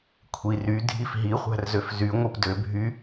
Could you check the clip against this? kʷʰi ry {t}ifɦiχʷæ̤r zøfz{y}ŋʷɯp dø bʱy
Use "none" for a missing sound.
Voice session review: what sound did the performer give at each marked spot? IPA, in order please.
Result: dʱ, y

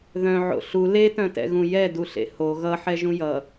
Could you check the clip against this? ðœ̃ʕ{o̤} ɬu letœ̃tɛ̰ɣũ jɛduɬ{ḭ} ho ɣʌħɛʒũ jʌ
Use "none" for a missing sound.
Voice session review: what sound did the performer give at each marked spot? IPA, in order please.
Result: o̰, ḛ

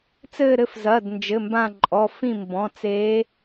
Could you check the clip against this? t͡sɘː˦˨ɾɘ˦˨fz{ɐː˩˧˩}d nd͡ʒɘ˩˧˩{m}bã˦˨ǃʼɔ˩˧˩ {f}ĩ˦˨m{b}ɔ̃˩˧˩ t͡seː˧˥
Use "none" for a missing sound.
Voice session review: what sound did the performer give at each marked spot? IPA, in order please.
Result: ɐː˩˧˩, m, f, b

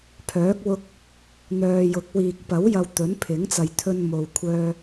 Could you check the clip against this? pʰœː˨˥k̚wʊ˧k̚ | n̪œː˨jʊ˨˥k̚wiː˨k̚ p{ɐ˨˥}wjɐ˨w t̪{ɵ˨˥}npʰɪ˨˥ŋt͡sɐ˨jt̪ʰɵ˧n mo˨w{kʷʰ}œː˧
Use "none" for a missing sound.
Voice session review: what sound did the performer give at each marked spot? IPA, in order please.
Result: ɐ˨˥, ɵ˨˥, kʷʰ

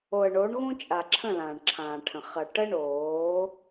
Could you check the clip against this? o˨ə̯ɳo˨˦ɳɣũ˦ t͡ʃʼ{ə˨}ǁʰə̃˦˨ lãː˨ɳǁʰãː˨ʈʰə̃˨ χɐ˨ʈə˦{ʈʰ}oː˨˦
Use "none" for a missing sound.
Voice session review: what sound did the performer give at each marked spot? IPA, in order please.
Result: a˨, ɳ

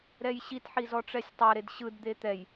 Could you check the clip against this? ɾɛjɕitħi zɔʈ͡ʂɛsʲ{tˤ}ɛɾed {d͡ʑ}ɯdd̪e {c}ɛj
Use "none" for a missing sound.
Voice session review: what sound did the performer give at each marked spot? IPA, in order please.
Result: tˤ, ɕ, t̪

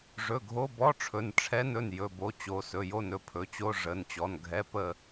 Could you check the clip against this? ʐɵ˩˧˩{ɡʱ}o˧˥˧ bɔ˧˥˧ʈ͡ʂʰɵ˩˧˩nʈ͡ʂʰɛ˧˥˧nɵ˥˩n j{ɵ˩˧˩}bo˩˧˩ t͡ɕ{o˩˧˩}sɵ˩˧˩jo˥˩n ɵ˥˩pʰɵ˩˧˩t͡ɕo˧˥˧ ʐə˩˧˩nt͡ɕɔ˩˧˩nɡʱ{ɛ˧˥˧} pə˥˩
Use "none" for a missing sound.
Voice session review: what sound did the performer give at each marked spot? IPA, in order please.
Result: ɡʱ, ɵ˩˧˩, o˩˧˩, ɛ˧˥˧

